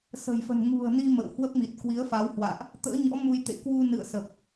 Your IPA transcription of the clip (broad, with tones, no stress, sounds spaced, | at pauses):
s ə̤˨˩ j f ə̤˨˩ n ŋ ṳ˨˩ ə̯ n i˧ m ə̰˧˨ w h w ə˦˥ p̚ m i˨˩ t̚ k w i˨˦ ə̯ f a˨˦ w h w a̰ː˧˨ ʔ | t̪ ə̰ː˧˥ ɲ ɔ̰˧˥ m u˧ j t̪ ḛ˧˨ k w u˧ n ɨ̰˧˨ ə̯ s ə˨˩ p̚